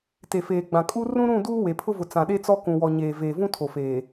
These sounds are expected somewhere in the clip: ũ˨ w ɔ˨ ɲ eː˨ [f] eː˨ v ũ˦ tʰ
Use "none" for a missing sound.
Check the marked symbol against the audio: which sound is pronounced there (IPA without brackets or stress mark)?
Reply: v